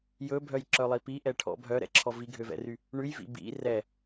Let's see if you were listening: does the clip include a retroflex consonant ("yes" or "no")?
yes